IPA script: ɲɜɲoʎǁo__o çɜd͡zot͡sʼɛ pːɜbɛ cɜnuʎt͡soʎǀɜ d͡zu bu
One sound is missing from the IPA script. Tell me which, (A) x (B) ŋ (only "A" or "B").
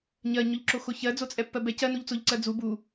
A